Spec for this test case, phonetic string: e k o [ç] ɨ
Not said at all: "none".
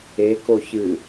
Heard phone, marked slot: ç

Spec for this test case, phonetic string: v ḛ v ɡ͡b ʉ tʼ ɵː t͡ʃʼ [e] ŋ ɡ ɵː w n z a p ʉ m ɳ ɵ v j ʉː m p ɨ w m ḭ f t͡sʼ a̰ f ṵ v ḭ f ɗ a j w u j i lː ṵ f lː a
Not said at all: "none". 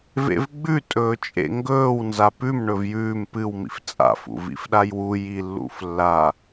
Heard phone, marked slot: ḛ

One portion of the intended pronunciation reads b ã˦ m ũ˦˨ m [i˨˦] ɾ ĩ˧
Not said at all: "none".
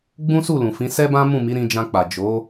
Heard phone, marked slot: i˨˦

